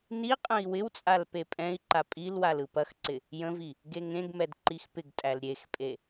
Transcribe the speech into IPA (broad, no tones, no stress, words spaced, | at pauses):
niqʼə̃i̯ wɪwt͡sʼal pepʼɛ̃i̯ǃa pʼilwal ɯpɐxǀɪ | jə̃vi | ɡeŋẽɡmɛd ǃixpɪɡtʼæl ɾʲexpʼe